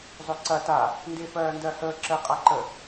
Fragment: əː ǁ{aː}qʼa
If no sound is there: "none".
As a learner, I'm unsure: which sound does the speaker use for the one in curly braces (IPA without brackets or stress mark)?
əː